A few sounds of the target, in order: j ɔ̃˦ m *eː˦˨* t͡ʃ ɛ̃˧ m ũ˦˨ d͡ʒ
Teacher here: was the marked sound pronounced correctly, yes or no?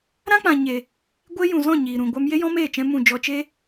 yes